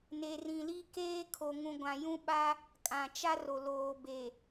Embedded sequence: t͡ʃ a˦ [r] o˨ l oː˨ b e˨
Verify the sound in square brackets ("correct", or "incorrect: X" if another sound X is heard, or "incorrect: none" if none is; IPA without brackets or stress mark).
correct